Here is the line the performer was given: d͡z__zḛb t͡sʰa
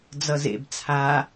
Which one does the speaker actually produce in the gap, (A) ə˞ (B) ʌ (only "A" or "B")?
B